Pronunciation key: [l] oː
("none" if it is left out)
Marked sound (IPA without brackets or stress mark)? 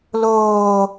l